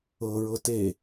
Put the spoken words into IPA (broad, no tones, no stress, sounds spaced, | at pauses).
ɤ ɹ ɤ t e